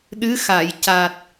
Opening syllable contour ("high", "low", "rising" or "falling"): rising